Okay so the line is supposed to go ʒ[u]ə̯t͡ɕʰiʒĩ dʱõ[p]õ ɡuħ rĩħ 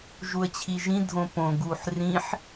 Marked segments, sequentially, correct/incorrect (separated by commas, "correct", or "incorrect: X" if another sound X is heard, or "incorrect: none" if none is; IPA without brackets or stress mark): correct, correct